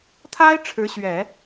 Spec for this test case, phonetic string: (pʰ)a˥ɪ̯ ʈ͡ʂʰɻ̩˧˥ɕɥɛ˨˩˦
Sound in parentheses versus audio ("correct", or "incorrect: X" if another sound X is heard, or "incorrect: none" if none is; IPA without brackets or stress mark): incorrect: t̪ʰ